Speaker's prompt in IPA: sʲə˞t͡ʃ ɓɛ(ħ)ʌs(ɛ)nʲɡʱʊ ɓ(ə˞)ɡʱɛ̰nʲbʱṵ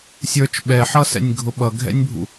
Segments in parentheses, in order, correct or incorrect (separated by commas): correct, incorrect, incorrect